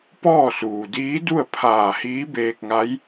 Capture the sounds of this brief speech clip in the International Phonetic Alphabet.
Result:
p ɔː˥˨ s uː˩ d iː˧˥ d u˥˨ ə̯ pʰ aː˧˩ h iː˧˥ b eː˧ k̚ ŋ a˧˥ j

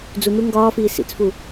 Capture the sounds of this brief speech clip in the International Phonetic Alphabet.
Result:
d͡z u n̪ u ŋ ɡ ɒː f iː s ḭ t͡s f u

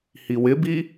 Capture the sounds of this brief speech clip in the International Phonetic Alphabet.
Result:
h i w ɪ b i

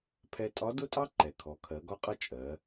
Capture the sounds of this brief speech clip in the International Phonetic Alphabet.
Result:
pʰ ɛ˧ tʼ ɒ˧˥ d ʊ˥ tʼ ɑ˥ ǃ ɛ˩ kʰ ɔ˩˧ kʰ ɜ˩˧ ɡ ɒ˧˥ qʼ ʌ˧˥ t͡ʃʼ ɜ˩˧

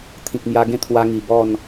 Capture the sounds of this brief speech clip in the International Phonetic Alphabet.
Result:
t̪ʰ ĩ˨ k̚ m j a˧ ɡ ẽ˦ t̪ʰ w a˧ ŋ i˨˩ b ɔ˥˧ n

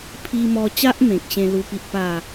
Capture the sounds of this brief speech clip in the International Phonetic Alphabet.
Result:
pʰ i˧ m ɔ˧ t͡ɕ a˦ ʔ m ẽ˨ k̚ ɕ ẽ˦ l u˦ p i˦ ʔ p a˥˧

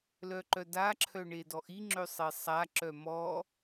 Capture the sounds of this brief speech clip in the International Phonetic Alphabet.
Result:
l œ ǃ œ d a ǁʰ œ ɳ e d ɔ ʔ i ŋ͡ǁ ø sˤ e sˤ a ǁ œ m ɔ

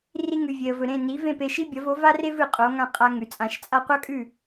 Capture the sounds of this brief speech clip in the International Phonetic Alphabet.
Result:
r i˧ ŋ ʉ˩ vʲ e˩ ə̯ v ɵ˩ ɾ ẽ˥˩ n i˩˥ v ẽ˥˩ p e˧ ʃ i˥ bʲ ɐ˩˥ v o˩˥ v a˥ r e˥ v ɨ˩ qʼ o˩˥ ŋ ã˥˩ qʼ a˧ ŋ ʉ˩ t͡sʼ ã˩˥ ʃ t͡sʼ a˥ qʷ a˥ kʼ ʉ˥˩

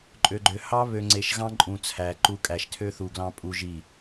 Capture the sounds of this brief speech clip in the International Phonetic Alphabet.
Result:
ǃʼ ø˨ ɡ͡ǃ ø˨ h ɑ˦ β ø˨ ŋ͡ǀ e˨ ʃ ɣ ɑ̃˦ ǃʼ ũ˨ t͡sʰ æ˨ ǃ u˦ kʼ æ˨ ʃ tʰ ø˦ θ u˨ ɡ l ɑ̃˦ pʼ u˦ ʒ i˦˨

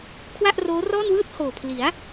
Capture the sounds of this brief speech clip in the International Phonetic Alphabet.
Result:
kʰ w a˥˩ ʔ r oː˦˥ r ɔː˥˩ n w ɯː˥˩ t̚ h oː˨˩ pʰ l i˩˦ a̯

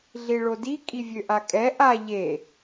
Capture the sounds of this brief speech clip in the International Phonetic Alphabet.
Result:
ɮ i ɭ o d i kʼ i vʲ ø ʔ a kʼ ɛ ʔ a ʎ e

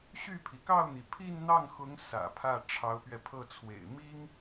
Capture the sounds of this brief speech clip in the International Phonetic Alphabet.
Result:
ɕ y˥˩ pʰ i˩ k ɑ˥˩ ʊ̯ n̪ i˩ pʰ i˥˧ n n̪ ɑ˥˩ ŋ x ʊ˧˥ ŋ s ä̰˨˩ pʰ ä˥˩ ʈ͡ʂʰ ɑ˧˥ ʊ̯ p ɥ ɛ˧ pʰ ɤ˥˩ t͡sʰ w ḛ˨˩ ɪ̯ m i˥ ŋ

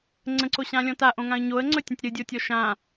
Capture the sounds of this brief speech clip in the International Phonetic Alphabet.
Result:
ŋ͡ǀ ə̃ ǀ o ɕ ã lʲ ɔ̃ t a ʔ õ ŋ ã ə̯ ɲ o ə̯ ŋ͡ǀ ɵ tʲ ə̃ tʲ ɾ ɨ dʲ o tʲ ɔ ʃ ã

